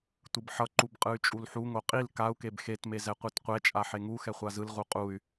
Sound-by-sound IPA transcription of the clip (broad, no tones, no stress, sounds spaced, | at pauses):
tʷ ɯ b ħ ʌ ǃ u b qʼ ɯ y̯ t͡ʃʼ u l ħ u ŋ o qʼ i l k a u̯ k e b x e t m e z ɛ qʷ i t qʷ ɛ t͡ʃʼ a ħ e ŋ u x ɛ χʷ a z ɯ l ʁ u qʼ u y̯